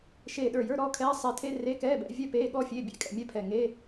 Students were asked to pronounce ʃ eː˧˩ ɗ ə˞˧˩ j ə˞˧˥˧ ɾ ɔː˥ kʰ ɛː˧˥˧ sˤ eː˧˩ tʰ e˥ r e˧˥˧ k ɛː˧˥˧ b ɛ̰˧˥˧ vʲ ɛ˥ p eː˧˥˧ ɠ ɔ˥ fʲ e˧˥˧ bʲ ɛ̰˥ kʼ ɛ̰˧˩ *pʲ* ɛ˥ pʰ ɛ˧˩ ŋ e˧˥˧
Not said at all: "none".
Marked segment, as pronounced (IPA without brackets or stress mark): mʲ